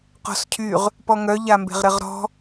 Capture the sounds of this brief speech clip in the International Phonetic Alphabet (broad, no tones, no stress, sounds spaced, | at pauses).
q ɔ̤ s cʰ y ʁ | p ɔ ŋ œ ʎ a m b e̤ ʁ ɾ ɪ ʁ ɾ ɔ̤